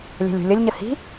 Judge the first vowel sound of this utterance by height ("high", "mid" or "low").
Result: mid